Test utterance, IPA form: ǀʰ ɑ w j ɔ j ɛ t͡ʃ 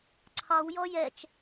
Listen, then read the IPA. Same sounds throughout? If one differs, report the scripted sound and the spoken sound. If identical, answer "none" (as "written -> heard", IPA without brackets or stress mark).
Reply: none